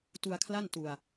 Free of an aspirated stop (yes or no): no